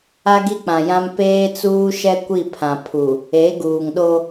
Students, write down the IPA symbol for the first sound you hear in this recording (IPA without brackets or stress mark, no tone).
a